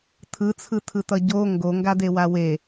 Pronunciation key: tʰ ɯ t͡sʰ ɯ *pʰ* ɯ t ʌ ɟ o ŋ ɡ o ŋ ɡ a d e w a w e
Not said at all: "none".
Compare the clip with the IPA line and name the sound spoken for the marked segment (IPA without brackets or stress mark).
tʰ